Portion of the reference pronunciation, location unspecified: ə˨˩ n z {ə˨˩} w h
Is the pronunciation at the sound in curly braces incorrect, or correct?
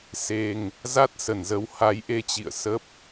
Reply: incorrect